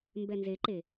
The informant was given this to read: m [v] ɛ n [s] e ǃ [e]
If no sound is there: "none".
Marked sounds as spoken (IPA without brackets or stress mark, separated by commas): b, z, e